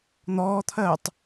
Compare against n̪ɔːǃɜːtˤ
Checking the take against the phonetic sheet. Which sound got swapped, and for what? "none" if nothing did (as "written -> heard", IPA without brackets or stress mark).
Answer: ǃ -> t̪ʰ